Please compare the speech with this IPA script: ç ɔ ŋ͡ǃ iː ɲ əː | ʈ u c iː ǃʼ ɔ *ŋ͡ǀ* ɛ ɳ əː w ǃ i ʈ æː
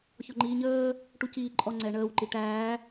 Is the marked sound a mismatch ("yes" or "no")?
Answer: no